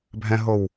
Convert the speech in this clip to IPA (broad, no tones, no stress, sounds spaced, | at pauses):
bʱ ɛ̃ ɦ o w